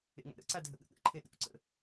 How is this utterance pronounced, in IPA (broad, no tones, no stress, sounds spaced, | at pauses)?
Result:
ḛ ŋ a̰ ɾ ə̰ ǀ a dʱ ə ɠ ə̰ ɠ ə̰ ǃʰ e ɗ ṵ ǀ ə̰